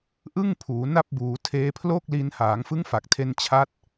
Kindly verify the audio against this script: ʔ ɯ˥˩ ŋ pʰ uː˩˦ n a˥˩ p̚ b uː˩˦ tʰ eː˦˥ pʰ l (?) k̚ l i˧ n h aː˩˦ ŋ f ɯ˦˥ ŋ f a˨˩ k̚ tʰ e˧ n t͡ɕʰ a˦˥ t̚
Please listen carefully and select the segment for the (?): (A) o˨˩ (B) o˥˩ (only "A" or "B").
B